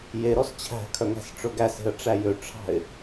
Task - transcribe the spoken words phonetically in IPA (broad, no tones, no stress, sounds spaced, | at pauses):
j e ɾ ɔ s t͡ɕʰ æ̤ kʰ œ ŋ æ̤ s ʈ͡ʂ ɵ ɡ æ s e̤ ə̯ ʈ͡ʂ æ j ø ʈ͡ʂʰ ɑ̤ ɪ̯